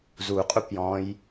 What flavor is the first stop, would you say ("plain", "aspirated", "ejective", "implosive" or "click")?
ejective